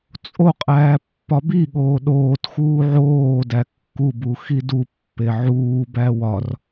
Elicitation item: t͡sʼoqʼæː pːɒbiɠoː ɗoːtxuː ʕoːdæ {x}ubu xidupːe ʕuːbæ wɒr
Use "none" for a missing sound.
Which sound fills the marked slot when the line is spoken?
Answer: kː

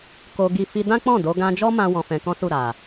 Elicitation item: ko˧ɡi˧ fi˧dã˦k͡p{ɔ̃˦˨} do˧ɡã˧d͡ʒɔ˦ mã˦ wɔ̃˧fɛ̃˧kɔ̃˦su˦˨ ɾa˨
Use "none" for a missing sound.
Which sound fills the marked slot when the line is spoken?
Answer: ɔ̃˦˨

